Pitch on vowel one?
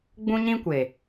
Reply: high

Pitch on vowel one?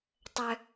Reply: low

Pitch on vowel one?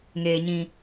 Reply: low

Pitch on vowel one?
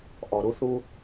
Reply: low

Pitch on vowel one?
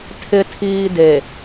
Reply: low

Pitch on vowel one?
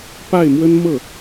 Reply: falling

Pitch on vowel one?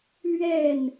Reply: falling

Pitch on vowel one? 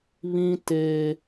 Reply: high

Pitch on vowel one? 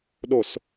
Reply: low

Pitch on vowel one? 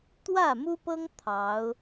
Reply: falling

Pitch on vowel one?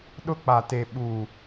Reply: high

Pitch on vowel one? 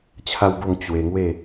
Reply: high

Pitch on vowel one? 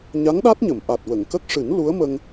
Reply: rising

